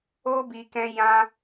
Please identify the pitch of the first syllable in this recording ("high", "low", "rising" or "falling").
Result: high